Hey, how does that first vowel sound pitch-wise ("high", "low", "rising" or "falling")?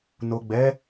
low